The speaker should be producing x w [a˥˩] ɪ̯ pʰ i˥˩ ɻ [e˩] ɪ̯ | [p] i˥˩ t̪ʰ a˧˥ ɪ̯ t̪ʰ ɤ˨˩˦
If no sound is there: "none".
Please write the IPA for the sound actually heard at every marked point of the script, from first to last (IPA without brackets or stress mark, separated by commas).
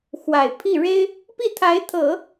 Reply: a˨˩, e˥, p